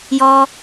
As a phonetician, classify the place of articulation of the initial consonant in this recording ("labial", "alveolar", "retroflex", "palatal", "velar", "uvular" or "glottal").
palatal